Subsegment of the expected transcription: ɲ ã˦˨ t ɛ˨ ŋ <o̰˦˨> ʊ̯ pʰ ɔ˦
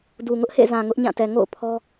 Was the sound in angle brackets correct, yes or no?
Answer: yes